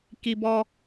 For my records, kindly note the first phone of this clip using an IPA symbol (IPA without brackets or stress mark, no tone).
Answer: k